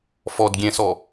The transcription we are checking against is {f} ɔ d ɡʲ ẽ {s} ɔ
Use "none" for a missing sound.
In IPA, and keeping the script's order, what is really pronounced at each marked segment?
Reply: f, s

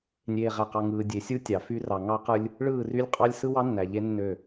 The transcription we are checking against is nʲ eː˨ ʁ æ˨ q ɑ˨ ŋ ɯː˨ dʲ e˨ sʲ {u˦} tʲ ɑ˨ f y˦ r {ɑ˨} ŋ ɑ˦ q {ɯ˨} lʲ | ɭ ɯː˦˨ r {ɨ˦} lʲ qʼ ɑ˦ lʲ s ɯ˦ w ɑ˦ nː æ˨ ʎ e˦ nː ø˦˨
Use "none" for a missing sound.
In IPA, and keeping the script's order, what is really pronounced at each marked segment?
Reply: u˦, ɑ˨, ɯ˦, y˦

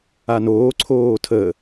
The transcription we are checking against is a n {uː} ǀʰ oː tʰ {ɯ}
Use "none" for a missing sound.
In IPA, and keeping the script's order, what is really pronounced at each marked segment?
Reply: oː, ə

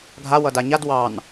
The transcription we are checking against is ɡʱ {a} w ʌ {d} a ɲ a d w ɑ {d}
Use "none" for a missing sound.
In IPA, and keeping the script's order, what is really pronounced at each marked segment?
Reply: a, d, n

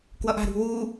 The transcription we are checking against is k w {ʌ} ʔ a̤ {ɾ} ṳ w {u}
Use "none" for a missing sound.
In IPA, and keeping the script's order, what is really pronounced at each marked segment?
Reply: ʌ, ɾ, u

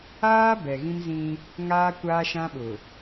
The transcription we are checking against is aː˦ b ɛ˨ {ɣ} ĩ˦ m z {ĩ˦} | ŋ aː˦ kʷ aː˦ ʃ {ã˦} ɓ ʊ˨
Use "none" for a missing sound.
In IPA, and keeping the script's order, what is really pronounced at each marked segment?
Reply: ɣ, ĩ˦, ã˦

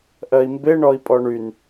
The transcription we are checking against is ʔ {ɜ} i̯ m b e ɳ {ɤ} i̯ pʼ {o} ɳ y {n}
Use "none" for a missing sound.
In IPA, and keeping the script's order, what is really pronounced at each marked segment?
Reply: ɜ, ɔ, ɔ, n

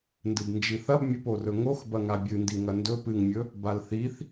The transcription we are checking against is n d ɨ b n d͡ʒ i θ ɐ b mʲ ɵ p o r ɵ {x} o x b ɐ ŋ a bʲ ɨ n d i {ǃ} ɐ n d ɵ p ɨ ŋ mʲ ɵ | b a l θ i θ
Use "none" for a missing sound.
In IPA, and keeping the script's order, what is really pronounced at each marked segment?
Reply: ŋ, ŋ

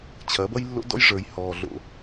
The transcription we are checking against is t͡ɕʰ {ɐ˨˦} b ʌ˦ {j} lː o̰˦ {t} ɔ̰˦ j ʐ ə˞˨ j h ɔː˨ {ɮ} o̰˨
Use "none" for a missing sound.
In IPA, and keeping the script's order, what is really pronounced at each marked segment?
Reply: ɐ˨˦, j, d, ɮ

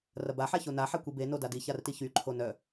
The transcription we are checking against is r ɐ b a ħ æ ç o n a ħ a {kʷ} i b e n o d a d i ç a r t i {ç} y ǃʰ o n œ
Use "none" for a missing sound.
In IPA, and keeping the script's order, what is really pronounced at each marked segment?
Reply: kʷ, ç

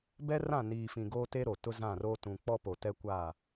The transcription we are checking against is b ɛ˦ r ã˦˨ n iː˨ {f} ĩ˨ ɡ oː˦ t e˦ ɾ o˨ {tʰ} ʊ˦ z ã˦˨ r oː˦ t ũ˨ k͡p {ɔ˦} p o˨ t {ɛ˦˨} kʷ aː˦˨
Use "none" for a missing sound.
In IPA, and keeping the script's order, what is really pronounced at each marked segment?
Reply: f, t, ɔ˦, ɛ˦

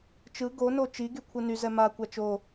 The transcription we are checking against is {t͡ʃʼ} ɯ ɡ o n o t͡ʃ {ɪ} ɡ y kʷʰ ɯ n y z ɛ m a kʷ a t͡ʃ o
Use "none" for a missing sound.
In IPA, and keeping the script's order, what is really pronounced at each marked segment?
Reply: t͡ʃ, i

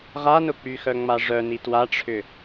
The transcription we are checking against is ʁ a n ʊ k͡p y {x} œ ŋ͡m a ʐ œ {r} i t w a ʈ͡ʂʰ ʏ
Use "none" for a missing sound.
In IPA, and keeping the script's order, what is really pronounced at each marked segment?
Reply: x, n

